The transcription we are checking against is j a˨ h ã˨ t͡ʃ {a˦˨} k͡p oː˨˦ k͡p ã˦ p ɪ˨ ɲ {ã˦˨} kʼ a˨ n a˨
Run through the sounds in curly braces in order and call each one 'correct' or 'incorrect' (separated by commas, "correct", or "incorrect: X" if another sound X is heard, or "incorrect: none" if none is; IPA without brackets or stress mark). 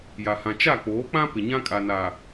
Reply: correct, incorrect: ã˦